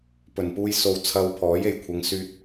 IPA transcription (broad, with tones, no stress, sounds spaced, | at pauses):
p ɵ˨˩ n p uː˧ j s o˧ w t͡sʰ ɐ˧ w pʰ ɔː˨˥ j e˨˩ j kʷʰ ɐ˨˧ ŋ s yː˧ t̚